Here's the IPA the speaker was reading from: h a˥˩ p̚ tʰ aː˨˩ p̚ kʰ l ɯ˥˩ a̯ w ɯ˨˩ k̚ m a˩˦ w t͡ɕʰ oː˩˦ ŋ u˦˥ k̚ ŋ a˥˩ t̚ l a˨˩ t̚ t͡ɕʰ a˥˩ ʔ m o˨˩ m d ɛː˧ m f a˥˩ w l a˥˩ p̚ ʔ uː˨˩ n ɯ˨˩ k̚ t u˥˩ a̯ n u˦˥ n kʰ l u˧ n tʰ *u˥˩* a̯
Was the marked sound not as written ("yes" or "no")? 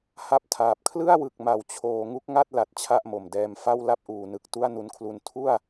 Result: no